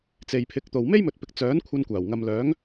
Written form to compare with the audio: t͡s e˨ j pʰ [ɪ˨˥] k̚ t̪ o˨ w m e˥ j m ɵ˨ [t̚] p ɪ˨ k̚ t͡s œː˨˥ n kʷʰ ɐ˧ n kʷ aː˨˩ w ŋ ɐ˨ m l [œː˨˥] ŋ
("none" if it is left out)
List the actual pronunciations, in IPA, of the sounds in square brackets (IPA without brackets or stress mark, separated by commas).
ɪ˨˥, t̚, œː˨˥